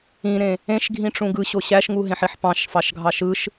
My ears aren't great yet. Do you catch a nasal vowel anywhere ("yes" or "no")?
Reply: yes